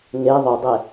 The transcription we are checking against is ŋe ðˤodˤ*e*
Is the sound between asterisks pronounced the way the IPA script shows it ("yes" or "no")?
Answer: yes